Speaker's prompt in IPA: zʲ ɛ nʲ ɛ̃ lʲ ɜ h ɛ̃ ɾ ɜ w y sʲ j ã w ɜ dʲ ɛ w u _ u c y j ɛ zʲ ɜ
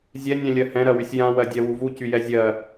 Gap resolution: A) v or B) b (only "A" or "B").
A